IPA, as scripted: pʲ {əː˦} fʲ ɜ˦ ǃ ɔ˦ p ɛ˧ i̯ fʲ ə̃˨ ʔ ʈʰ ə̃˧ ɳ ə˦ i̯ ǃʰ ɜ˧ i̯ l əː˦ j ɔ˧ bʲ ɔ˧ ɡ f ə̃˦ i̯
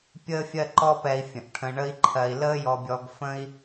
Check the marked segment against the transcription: correct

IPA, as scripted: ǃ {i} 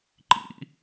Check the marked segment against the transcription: incorrect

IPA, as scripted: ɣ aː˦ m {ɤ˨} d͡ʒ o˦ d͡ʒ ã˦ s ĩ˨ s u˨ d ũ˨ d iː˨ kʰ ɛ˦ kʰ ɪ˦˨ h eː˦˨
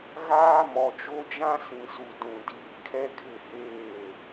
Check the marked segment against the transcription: incorrect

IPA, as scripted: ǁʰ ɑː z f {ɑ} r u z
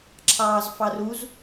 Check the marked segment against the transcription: correct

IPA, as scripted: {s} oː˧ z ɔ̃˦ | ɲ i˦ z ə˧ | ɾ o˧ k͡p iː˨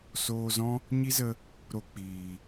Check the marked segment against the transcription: correct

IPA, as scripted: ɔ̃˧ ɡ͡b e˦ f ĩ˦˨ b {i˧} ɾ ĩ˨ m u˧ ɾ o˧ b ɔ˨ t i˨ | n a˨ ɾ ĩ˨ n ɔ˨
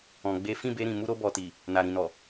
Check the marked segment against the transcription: incorrect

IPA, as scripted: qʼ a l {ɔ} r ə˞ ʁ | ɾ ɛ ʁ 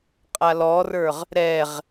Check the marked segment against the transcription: correct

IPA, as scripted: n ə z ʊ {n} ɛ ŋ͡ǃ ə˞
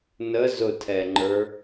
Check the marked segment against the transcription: incorrect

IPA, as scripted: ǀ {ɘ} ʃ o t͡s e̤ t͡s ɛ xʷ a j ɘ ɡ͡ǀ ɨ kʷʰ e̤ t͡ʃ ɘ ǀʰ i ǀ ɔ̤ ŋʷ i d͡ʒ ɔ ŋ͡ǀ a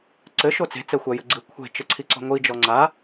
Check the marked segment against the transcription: correct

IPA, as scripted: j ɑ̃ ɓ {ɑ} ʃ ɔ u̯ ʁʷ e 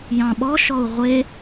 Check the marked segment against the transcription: incorrect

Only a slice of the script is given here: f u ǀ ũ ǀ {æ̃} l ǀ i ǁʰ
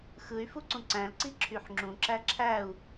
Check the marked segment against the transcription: correct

